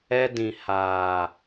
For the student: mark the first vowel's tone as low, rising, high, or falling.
high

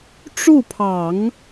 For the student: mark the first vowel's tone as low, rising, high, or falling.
falling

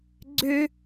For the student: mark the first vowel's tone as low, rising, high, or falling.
high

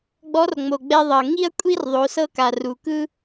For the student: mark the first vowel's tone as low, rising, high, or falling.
rising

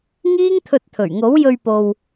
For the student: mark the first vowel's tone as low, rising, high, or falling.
high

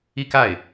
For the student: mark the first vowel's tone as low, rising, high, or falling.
falling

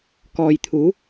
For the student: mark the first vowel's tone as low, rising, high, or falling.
low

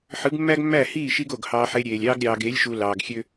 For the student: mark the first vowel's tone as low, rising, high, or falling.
rising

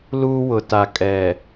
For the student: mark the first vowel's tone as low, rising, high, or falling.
high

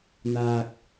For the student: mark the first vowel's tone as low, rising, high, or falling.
low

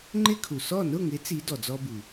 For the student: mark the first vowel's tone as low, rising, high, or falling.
high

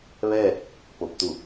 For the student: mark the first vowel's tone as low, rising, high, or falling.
falling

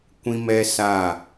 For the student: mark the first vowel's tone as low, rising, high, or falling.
high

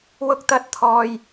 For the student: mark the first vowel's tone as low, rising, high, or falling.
high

